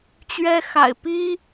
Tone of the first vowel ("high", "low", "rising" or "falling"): high